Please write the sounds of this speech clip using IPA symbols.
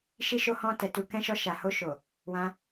ʃ i˦ ʃ o˦ h ɔ̃˧ t ɛ˨ t u˨ k ɛ̃˧ ʃ ɔ˧ ʃ a˨ h o˧ ʃ o˨ | w ã˧

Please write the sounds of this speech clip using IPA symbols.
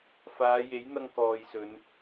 f aː˨˧ j e˨˥ j n̪ ɐ˧ ŋ k ɔː˨ j s ɵ˨˧ n

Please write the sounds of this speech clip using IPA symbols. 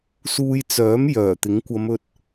s uː˧ j t͡s œː˨˥ m j œː˨˩ t̪ ɪ˨˥ ŋ kʷ ɐ˨˧ m ɵ˧ t̚

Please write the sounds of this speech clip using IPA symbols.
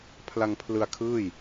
pʰ l a˧ ŋ pʰ l ɯ˧ a̯ kʰ ɯː˥˩ j

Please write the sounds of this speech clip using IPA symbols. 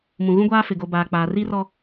m ũ˨ ɣ ũ˦ ɡʷ aː˦ f ɪ˨ ɡ o˨ b aː˨ k͡p aː˨ r i˦ r ɔ˦

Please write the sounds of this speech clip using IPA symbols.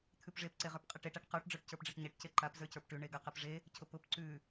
t̪ʰ ʉ p ʐ e p ǀ e ʁ ə˞ p qʼ ɛ ʈ e ʈ a ʈ q ə˞ ʈ ɖ͡ʐ ə˞ ʈ c ə˞ p ɖ͡ʐ e ʈ ɲ e ʈ c e ǃ a p z ə˞ c ə˞ p ʈ ʉ ɳ e ɡ a q ɛ p ʐ e | cʰ ʊ p ʊ p ǀ ʉ

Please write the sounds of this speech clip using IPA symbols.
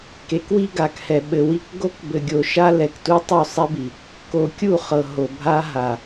k e˨˦ k w i˦ ɡ a˨ k h ɛ˨ ɓ ɘ˨ w i˦ k ɡ o˦ k b ɘ˨ ɡʲ o˨ ʃ a˦ l ɛ˨ k t u˦ tˤ u˦˨ sˤ ɛ˦ b i˨ | k o˨ kʲ u˦˨ χ ɤ˨ ɦ o˨ bʱ a˦ ɦ a˨

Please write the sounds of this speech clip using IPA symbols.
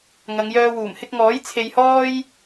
ŋ ɐ˨˧ ŋ j œː˧ w uː˨˩ m h ɪ˧ k̚ ŋ ɔː˨˥ j t͡sʰ e˧ j h ɔː˥ j

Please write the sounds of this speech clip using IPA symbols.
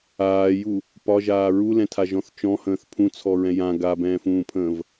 aː j u | p ɒ ʒ aː ɹ u l ɛ̃ tʰ a ʒ ɔ̃ θ t͡ʃ ɔ̃ h ə̃ː θ pʰ ũ t͡sʰ ɔ ɹ ɛ̃ j ã ɡ a b ɛ̃ː f ũː pʰ ə̃ː v

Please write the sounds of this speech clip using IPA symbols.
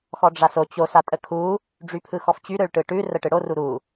x ɔ ɖ͡ʐ a s o t͡ɕ o s a tʼ ə kʰ u | ɖ͡ʐ y pʰ ɯ x ɔ f t͡ɕ y ɾ ɯ ɭ ʈ ɯ ʈ ʉ r ə ʈ ɯ ɽ o r u ɾ u

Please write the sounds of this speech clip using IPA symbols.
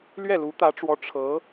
l ɥ ɛ˥˩ l u˧˥ t̪ ä˧˥ ʈ͡ʂ w ɔ˧˥ ʈ͡ʂʰ ɤ˧˥

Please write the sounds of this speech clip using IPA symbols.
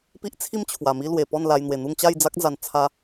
p i˦ ʔ t͡sʰ i˥˧ m t͡ɕʰ w a˨˩ m i˦ l w e˨˩ p ɔ˥˧ n l a˧ j n̪ w e˨˩ n̪ u˥˧ ŋ t͡ɕ a˥˧ j d͡z a˦ k̚ d͡z a˨˩ n t͡sʰ a˧

